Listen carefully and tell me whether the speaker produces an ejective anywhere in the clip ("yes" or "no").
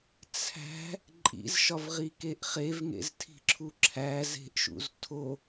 yes